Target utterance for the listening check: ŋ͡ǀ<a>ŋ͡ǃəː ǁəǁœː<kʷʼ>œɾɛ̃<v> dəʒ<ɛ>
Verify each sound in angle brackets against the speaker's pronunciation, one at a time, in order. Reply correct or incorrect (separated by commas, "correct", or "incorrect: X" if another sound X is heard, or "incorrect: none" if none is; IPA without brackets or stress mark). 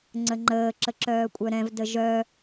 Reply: incorrect: ə, correct, correct, incorrect: œ